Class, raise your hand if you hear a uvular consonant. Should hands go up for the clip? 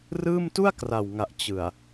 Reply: no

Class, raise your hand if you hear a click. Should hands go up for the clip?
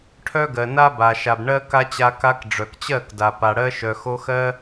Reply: no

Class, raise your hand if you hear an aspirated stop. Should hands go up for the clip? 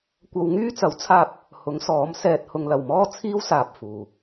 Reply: yes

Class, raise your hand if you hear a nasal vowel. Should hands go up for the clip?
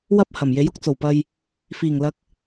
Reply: no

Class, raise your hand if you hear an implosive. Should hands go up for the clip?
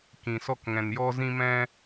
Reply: no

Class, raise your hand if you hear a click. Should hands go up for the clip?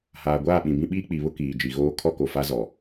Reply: no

